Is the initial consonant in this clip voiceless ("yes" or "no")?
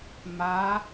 no